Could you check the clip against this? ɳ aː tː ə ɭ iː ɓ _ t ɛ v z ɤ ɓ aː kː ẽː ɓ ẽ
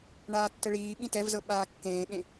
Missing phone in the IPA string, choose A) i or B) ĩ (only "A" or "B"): B